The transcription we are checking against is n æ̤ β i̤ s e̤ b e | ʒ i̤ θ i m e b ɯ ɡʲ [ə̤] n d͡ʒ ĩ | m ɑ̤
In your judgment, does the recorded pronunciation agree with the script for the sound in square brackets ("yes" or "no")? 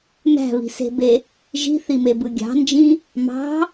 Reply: no